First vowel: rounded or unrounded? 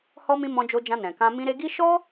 rounded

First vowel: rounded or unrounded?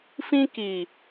unrounded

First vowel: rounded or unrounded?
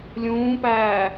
rounded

